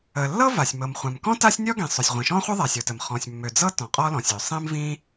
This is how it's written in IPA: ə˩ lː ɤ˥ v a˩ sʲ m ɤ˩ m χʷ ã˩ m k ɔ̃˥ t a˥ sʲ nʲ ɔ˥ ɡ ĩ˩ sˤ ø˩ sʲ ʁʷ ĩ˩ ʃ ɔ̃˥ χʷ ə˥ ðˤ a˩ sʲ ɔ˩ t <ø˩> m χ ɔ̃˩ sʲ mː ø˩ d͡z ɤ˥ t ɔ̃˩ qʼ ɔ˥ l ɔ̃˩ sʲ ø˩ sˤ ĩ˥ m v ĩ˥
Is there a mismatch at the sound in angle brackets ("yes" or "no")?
yes